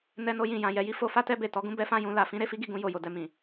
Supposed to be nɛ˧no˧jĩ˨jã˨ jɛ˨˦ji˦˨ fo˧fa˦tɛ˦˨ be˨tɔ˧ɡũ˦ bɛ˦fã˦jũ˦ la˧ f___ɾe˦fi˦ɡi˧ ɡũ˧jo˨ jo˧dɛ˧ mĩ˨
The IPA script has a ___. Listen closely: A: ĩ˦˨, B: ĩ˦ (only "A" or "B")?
B